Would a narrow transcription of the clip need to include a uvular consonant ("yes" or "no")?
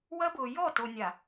no